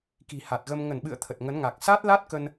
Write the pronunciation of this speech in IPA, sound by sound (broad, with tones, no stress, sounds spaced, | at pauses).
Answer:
k i̤˨˩ h a˨˩ t̚ ɣ ə˧ m ŋ ə˧˩ n ɓ ɨ̰˧˨ ə̯ t̪ʰ ə˨˩ t̚ ŋ ə˨˦ n ŋ a˨˩ k̚ s a˦˥ t̚ l a˦˥ t̚ k ə˧ n